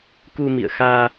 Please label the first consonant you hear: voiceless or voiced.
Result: voiceless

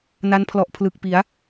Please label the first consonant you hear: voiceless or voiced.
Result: voiced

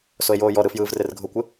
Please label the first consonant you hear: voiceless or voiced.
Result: voiceless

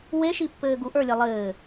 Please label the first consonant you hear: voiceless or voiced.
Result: voiced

